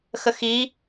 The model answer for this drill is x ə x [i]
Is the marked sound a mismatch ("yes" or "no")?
no